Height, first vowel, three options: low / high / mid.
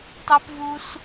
mid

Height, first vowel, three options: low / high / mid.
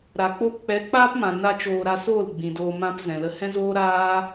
low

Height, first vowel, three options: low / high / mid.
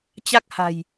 low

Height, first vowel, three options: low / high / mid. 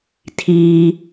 high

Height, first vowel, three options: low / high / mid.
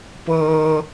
mid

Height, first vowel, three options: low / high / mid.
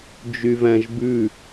high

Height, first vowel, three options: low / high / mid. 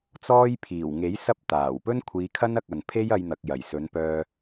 mid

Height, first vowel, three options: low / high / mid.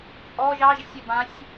mid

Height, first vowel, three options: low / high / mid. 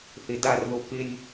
high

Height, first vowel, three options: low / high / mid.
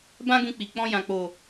low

